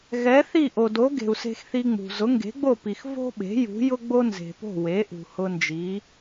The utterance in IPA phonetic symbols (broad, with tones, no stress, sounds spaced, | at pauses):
ɣ ɛ˩˥ θ i˥˩ ʔ o˩ d o˩˥ ɡ e̤˩ u̯ s e̤˧ x θ i˧ ŋ͡m ṳ˩ z ʊ˩˥ ŋ ɡ e̤˩˥ ɡ͡b o˥˩ p i˩ x v o̤˥ ɓ e̤˩˥ j ṳ˩˥ j ʊ˥ ɡ͡b o˥ n z e̤˩ p o̤˥˩ w e˩˥ ʔ ṳ˩ h ʊ˧ n d͡ʒ i˩˥